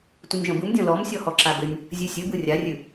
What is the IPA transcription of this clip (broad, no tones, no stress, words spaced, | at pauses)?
tʷɯnʲʒɔ̃bɯmdʲɔ̃ lɔm sʲɔhɔǁabɘnʲ | zʲʉsʲɨbɯ rʲarʲʉ